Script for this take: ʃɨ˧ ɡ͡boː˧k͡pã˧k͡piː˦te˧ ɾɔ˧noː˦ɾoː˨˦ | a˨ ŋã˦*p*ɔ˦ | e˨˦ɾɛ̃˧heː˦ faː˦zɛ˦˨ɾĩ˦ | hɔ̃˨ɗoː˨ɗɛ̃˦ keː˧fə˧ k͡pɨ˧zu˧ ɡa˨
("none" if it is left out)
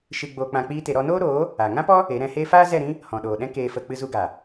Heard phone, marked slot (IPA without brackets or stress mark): p